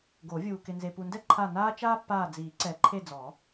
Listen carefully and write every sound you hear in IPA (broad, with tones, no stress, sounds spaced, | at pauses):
ɡ o˨˩˦ vʲ uː˨ k ɪ˨ n z e˨ p u˨ n d ɛ˥ ǃʰ a˦˨ n aː˥ t͡ʃ aː˥ pː aː˦˨ d͡z iː˨˩˦ ǀ ɛ˨˩˦ ǃʰ e˦˨ d͡z ɔ˨˩˦